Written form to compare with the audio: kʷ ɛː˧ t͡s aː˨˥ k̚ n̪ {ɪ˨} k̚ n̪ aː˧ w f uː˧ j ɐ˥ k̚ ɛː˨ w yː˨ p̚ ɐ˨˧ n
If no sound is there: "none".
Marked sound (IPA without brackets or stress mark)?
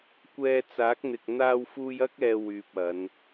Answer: ɪ˨